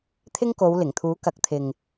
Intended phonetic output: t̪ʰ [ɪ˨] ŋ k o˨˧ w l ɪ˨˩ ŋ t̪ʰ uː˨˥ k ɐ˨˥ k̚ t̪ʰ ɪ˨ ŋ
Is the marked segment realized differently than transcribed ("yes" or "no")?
yes